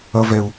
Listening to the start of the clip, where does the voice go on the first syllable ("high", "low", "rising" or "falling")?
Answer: high